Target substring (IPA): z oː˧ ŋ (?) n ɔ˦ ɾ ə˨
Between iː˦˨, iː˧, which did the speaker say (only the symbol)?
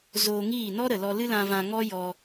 iː˦˨